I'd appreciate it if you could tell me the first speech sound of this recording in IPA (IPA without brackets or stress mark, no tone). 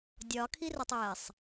dʲ